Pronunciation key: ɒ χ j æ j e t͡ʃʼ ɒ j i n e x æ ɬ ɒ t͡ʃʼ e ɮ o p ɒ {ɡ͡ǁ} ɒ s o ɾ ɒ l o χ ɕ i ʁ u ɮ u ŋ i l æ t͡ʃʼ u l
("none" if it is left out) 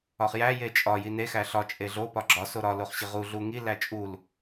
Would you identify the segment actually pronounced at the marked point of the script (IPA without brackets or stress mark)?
ɡ͡ǁ